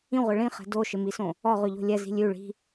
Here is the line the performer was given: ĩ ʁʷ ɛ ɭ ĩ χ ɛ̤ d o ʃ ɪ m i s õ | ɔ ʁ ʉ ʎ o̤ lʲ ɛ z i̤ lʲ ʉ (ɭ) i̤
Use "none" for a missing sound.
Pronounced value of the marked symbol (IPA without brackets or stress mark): ɭ